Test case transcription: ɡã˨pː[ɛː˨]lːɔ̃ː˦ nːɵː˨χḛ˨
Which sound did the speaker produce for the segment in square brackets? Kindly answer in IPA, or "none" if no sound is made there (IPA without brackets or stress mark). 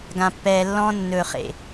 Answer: ɛː˨